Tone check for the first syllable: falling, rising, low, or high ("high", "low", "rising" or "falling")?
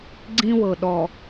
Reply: high